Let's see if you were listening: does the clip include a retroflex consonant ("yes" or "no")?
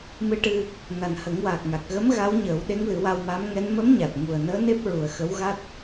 yes